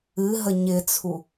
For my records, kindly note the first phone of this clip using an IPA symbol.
ɨ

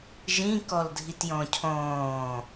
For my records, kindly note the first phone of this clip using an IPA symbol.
ʒ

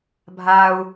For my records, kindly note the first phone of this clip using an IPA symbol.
bʱ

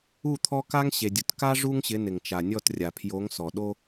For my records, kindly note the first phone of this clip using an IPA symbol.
u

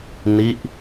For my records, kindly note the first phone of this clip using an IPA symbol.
n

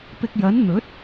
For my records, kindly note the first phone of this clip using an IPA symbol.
p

